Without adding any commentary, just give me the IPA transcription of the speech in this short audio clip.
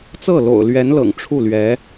t͡s ɤ˥˩ l o̰˨˩ ʊ̯ l ɥ ɛ˧˥ n l ɤ̰˨˩ ŋ ʈ͡ʂʰ u˥˩ l ɥ ɛ˧˥

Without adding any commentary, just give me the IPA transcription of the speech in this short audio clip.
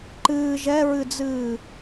ǃ ɨː ʒ ɛ ɹ ɨ d͡z ɨː

